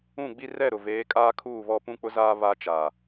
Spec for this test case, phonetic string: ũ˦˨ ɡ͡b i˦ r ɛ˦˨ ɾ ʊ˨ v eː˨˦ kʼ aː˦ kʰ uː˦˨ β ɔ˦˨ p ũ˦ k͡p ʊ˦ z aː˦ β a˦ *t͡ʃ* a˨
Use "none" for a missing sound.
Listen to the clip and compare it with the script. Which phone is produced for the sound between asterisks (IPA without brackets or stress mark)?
t͡ʃ